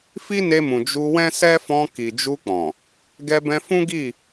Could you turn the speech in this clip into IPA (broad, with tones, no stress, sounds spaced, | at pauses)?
f i˦ n e˧ m ũ˨ d͡ʒ u˧ w ɛ̃˦ s ɛ˦ f ɔ̃˧ k i˨ d͡ʒ u˧ k͡p ɔ̃˨ | ɡ ɛ˧ b ɛ̃˧ f ũ˦ ɡ i˦˨